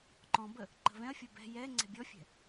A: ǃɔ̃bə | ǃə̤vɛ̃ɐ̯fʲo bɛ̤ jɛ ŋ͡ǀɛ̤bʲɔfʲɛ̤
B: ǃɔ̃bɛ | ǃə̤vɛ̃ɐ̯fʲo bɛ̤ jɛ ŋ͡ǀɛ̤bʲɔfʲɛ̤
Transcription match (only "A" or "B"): A